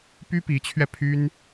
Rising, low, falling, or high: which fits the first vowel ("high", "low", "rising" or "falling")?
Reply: high